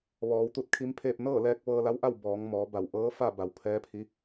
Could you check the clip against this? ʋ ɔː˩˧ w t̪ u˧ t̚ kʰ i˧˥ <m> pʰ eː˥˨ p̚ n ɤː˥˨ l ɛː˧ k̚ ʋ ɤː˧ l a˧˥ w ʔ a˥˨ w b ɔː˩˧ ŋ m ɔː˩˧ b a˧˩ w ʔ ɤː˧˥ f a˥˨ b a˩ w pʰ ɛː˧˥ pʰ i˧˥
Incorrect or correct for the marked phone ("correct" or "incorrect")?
correct